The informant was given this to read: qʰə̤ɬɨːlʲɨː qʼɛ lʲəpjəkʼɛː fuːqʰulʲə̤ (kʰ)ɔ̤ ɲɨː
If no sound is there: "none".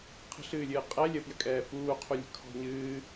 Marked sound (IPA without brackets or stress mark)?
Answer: kʰ